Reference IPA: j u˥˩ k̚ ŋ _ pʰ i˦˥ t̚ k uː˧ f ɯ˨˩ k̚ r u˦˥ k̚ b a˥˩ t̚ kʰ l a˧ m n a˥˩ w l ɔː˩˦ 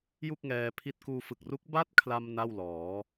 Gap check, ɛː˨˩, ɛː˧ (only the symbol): ɛː˧